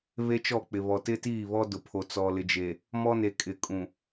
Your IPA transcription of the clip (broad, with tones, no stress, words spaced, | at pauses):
βe˦t͡ʃɔ˦˨k͡pɪ˨ βɔ˨tɪ˦tiː˦˨βɔ˦ dʊ˨pʰo˨ t͡sɔ˨lɪ˨d͡ʒe˨ | mɔ˦ne˨ kʼɪ˨kʼũ˨